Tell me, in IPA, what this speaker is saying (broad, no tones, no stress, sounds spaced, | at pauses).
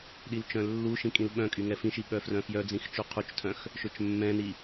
ɗ i l t͡ʃ œ̃ lː u ʃ ĩ kʼ ĩ l ɓ œ̃ kʼ y ŋ ɛ f ĩ ʃ i ɓ œ f r œ̃ f j œ d͡z ĩ x t͡ʃ u qʰ u t͡ʃ tʰ œ̃ x | ʃ ø t͡ʃ mː ɛ̃ n i